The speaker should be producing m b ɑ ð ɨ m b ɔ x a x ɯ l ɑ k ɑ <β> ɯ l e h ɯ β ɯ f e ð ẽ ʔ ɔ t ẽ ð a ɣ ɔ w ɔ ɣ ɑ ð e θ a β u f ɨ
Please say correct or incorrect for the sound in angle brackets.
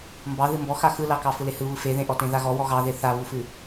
incorrect: f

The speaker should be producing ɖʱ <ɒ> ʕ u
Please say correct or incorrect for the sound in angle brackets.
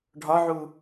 correct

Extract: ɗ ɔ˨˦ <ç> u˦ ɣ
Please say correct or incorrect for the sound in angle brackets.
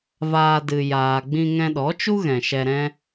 incorrect: t͡ʃ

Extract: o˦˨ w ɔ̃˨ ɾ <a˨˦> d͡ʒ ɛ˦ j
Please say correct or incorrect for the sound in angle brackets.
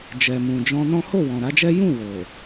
correct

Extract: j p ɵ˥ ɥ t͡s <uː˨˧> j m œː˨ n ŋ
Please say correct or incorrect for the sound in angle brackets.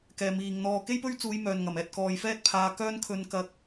correct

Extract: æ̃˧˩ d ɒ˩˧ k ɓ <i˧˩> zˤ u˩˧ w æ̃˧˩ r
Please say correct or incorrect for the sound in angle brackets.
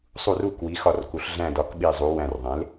correct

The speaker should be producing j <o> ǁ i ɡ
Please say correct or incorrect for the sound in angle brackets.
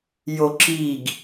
correct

